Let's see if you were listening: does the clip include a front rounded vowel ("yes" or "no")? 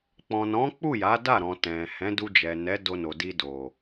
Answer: no